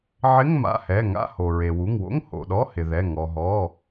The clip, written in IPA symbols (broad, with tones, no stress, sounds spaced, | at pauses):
ʕ ɪ˧˥˧ ŋ m a̰˩˧˩ h ɛ˩˧˩ ŋ a̰˧˥˧ h o˩ ɹ e˩ w u˩˧˩ ŋ w o̰˧˥˧ ŋ h o̰˩˧˩ ɗ ɔ˧˥˧ h ɪ˩ ð ɛ˩˧˩ ŋ ɔ˩ ɦ ɔ˩˧˩